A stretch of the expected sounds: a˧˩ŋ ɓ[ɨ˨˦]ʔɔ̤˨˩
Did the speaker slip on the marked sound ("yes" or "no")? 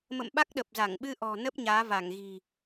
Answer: yes